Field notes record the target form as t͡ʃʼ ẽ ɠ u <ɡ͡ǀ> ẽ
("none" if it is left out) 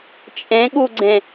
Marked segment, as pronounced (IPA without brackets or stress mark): ɡ͡ǀ